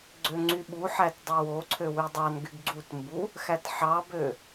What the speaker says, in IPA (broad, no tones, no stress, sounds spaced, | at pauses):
ɡ͡ǀ ø ŋ͡ǀ y ɓ u ħ æ t dˤ e w o ǀʰ ø w y dˤ ɑ n ɡ y ɡ ɡ͡ǀ u t m b u | x æ t ħ ɑ b ø